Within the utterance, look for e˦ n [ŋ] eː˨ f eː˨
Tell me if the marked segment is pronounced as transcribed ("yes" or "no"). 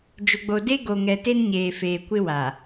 no